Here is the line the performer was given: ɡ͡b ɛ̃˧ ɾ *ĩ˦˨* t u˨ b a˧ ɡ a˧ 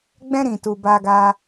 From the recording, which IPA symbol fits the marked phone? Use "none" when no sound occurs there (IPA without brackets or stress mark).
ĩ˨